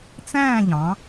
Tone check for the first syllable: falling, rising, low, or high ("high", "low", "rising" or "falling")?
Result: falling